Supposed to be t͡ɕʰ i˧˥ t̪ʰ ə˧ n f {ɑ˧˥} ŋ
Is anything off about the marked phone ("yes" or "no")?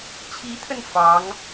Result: no